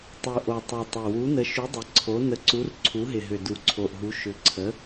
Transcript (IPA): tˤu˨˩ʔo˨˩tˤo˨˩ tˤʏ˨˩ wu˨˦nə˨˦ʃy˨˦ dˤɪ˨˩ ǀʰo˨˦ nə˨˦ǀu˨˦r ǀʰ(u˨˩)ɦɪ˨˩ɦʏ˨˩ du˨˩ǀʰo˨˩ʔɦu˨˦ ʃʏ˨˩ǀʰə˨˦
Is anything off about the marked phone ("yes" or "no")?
yes